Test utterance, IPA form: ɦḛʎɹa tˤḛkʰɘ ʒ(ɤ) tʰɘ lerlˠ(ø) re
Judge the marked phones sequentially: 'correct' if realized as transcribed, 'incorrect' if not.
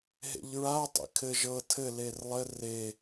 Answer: correct, incorrect

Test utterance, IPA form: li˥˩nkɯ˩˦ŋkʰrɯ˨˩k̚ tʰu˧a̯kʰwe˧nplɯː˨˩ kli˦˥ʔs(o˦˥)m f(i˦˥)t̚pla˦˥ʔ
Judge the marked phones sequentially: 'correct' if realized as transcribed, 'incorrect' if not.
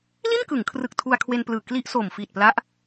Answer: incorrect, incorrect

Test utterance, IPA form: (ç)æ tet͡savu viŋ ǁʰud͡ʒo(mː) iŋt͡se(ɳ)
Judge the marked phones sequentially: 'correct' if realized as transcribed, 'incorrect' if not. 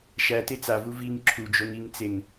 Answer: incorrect, incorrect, incorrect

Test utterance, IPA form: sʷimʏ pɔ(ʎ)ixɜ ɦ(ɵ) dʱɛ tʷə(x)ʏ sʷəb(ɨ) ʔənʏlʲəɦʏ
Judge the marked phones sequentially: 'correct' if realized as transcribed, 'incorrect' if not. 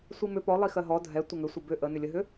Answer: incorrect, incorrect, incorrect, incorrect

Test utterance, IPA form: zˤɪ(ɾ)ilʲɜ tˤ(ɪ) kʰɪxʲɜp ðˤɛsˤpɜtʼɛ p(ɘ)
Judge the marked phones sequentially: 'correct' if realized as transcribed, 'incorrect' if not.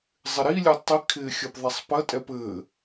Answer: correct, incorrect, correct

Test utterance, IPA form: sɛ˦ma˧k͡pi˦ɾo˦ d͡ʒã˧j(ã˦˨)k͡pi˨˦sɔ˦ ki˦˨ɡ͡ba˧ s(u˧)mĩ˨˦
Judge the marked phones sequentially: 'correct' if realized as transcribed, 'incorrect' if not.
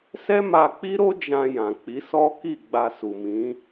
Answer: incorrect, incorrect

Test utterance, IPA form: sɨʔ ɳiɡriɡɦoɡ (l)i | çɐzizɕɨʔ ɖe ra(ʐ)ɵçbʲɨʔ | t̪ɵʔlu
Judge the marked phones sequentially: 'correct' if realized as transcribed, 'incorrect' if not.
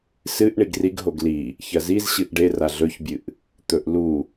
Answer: correct, incorrect

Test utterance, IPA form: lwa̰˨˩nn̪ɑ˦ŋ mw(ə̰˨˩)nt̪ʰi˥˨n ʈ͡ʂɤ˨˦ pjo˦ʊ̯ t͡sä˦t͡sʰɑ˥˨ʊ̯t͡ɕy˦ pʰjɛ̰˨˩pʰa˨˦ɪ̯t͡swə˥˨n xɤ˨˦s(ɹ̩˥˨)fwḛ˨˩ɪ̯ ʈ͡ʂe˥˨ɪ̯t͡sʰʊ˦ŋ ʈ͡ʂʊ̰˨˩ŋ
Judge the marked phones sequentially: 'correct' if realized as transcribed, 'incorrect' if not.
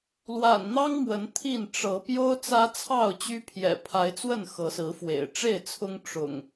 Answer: incorrect, incorrect

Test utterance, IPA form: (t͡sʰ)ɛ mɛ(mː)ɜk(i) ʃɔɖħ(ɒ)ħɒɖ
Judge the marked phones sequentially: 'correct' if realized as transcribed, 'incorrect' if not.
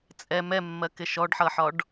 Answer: incorrect, correct, incorrect, incorrect

